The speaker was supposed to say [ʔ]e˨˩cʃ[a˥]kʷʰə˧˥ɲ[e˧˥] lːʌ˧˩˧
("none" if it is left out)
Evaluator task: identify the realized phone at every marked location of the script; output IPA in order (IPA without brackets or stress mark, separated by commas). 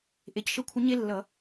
ʔ, ə˥, e˥